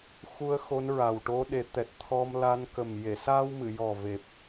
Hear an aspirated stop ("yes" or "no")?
yes